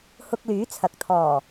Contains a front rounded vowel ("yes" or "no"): yes